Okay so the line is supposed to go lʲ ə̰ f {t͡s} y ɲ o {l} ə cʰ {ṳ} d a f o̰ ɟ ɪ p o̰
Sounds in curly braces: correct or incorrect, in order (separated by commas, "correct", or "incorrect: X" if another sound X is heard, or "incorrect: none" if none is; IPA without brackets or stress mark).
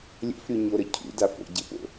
incorrect: ɾ, incorrect: ɾ, incorrect: ṵ